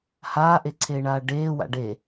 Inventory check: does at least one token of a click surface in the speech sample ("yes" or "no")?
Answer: yes